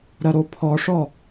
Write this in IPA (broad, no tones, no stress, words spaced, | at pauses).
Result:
ɾɐɾopʰɔʂɔ